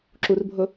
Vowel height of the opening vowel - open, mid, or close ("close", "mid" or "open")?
close